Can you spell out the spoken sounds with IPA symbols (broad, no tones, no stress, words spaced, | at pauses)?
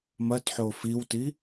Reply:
mɐtħo fiwti